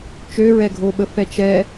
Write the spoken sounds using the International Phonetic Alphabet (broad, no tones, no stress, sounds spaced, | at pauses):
t͡ʃ ø ɹ ɛ ɡʱ o ɓ ə f ɛ t͡ʃ ɛ